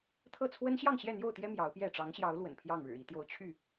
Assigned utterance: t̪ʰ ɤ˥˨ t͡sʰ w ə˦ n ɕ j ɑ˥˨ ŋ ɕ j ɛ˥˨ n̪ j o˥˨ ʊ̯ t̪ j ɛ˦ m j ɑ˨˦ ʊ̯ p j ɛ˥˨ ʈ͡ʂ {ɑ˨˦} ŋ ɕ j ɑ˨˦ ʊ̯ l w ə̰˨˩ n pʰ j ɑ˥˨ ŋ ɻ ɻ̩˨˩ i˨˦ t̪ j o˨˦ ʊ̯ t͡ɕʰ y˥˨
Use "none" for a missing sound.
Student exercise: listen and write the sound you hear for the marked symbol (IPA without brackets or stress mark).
ɑ˨˦